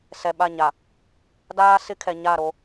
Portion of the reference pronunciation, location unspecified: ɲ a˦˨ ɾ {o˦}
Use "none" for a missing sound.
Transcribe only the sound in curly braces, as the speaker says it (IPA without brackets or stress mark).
o˦